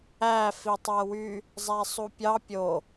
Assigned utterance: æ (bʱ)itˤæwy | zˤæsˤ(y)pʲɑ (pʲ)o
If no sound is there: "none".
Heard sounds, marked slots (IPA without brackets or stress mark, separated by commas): f, u, pʲ